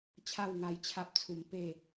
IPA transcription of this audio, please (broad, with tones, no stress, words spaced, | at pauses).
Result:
t͡ɕʰa˥˧wŋa˧jt͡ɕʰa˦p̚t͡sʰu˧m pe˥˧